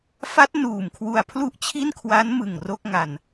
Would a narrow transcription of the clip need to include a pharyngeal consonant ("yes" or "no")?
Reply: no